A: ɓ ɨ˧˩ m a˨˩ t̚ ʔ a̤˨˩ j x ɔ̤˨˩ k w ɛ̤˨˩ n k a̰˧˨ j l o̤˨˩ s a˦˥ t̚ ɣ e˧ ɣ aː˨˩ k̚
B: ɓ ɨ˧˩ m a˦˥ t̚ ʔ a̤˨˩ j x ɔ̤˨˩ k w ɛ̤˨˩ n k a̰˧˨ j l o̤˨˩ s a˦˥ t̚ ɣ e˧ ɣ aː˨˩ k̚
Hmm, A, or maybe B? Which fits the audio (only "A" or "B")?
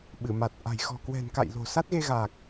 A